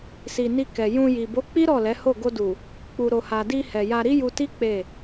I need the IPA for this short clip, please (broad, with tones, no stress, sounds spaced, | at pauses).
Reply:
s i˨ n i˧ k ɛ˨ j ũ˧ j i˨ b o˨˦ k͡p i˦ ɾ ɔ˦˨ l ɛ˨˦ h o˦˨ ɡ o˧ d u˨ | k͡p u˨ ɾ o˨ h a˨ d i˧ h ɛ˨ j a˧ ɾ i˦ j u˧ t i˦ k͡p e˦˨